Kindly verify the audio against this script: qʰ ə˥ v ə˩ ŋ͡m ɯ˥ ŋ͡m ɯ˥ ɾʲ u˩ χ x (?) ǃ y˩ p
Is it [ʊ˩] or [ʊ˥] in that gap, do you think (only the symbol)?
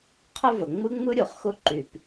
ʊ˥